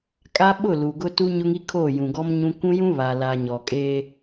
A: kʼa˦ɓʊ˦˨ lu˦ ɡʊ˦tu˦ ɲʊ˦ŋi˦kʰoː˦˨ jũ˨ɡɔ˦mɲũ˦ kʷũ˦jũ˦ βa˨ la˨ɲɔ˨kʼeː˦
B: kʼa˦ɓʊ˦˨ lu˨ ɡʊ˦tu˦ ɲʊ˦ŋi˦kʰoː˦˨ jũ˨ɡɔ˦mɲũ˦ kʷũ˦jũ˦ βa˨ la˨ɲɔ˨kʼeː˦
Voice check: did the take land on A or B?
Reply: B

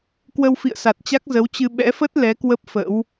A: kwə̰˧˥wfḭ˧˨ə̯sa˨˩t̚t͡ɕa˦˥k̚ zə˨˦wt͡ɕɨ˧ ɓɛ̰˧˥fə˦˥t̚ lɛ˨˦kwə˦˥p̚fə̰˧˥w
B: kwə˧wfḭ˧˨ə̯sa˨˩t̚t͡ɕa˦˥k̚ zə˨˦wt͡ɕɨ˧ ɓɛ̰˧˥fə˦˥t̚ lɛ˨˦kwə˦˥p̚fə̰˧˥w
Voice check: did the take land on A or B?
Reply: B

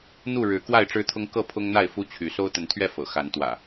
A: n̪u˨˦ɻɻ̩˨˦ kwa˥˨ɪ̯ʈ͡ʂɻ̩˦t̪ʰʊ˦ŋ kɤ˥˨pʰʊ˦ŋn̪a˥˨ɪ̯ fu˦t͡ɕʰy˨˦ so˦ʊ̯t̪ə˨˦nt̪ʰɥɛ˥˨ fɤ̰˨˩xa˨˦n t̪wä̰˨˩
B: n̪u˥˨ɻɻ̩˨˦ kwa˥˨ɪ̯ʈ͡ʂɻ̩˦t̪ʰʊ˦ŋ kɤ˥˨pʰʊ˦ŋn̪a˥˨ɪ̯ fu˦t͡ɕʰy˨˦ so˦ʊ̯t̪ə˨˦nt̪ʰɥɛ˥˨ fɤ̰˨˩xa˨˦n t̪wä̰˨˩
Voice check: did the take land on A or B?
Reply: B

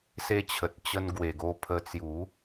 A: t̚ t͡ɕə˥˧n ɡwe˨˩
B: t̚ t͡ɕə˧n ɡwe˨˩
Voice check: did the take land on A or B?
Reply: B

